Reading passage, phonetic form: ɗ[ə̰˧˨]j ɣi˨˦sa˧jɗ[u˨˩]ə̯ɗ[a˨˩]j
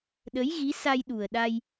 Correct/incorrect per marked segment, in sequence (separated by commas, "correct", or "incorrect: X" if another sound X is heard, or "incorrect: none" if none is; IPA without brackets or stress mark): incorrect: ə˨˦, correct, incorrect: a˧